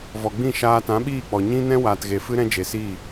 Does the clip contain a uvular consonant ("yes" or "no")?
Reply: no